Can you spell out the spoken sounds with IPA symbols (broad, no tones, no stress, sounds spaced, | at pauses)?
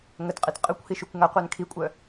ŋ ə t qʼ i t qʼ ə kʷ h i ʃ y kʷ ŋ a qʷ œ n kʰ i kʷʼ œ